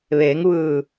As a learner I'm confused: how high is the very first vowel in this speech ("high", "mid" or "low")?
mid